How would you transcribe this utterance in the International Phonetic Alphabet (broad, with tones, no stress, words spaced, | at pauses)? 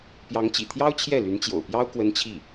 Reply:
pjɑ˧˥ŋt͡ɕḭ˨˩t̪ʰjɑ˥ʊ̯ t͡ɕʰjɛ˥˩ly˧˥nt͡ɕjo̰˨˩ʊ̯pjɑ˥ʊ̯ kwə˥nt͡ɕʰi˥˩